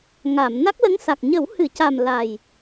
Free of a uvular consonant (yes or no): yes